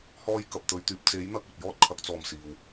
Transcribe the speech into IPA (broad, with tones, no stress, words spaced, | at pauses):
hɔː˧j kɐ˨p̚t̪ɵ˨˧ɥt̪yː˧p̚ t͡se˨˥j n̪ɐ˥k̚ɵ˨t̚jɔː˥t̚ kʰɐ˨˥k̚t͡sɔː˨m siː˨w